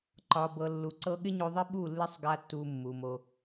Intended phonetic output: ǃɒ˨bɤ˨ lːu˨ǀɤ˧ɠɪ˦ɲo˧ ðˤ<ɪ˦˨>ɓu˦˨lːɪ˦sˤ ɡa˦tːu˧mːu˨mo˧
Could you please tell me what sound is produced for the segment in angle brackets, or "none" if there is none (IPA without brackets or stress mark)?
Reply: ɪ˦